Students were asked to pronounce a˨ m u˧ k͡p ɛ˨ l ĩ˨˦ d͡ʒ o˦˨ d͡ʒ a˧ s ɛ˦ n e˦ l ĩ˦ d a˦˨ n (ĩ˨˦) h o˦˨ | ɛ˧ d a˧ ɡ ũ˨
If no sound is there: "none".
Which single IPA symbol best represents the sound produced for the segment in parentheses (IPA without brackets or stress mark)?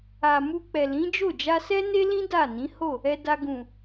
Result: ĩ˨˦